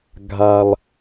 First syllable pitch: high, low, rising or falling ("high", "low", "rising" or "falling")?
high